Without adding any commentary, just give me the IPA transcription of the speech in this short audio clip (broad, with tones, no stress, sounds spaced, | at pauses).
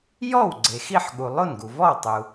j ɔ˥˩ w ɡ͡ǀ e˩ x i˥˩ ħ ɠ u˩ lˠ o˥˩ n ɡ u˩ v ɔ˥˩ w tˤ u˩